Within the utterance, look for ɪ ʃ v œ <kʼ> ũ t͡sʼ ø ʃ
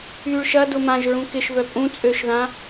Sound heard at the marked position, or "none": pʼ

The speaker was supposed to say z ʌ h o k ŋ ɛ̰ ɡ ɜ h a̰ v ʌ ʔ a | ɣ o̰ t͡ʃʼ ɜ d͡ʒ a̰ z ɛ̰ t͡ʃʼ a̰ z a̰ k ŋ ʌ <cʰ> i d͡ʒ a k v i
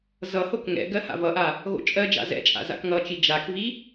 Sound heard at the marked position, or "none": t͡ʃ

